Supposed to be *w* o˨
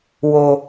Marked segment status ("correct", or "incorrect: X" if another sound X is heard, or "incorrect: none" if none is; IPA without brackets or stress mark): correct